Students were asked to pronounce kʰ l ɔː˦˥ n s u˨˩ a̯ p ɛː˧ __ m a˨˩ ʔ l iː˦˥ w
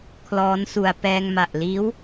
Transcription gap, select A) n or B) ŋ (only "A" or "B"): B